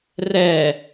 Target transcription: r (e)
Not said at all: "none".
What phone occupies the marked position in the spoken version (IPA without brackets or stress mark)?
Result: ɛ